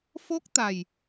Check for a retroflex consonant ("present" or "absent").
absent